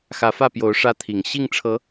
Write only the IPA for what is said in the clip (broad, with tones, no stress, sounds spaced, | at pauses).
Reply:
x ä˨˦ f ä˥˨ p j o˨˦ ʊ̯ ʂ ä˦ t̪ʰ i˨˩ ŋ ɕ i˥˨ ŋ ʈ͡ʂʰ ɤ˨˦